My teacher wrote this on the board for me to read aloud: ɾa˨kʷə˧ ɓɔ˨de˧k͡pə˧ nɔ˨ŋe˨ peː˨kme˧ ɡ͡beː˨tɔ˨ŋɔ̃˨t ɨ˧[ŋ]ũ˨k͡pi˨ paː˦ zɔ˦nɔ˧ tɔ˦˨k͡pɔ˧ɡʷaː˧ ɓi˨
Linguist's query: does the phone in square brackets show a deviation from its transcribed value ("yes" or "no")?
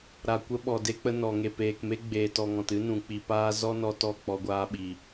yes